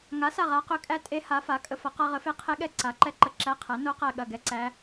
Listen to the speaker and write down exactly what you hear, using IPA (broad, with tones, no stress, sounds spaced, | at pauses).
ŋ a˨˥ s a˦˨ ʁ a˨˥ q ʏ˨˥ kʼ æ˦˥ tʼ e˦˥ h a˨˥ f a˨˥ kʼ ə˦˥ f ɐ˨˥ q a˦˥ ʁ ə˨˥ f e˦˥ qʰ e˦˥ ɠ ɛ˦˨ ǀ a˨˥ ǃ ɛ˦˥ ǃ ə˦˨ ǁ æ˦˥ qʰ æ˨˥ n o˦˥ q æ˦˨ ɠ ɐ˦˨ ɡ ɛ˦˥ ǀ æ˦˥